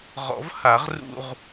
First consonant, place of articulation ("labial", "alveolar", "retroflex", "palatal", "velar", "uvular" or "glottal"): uvular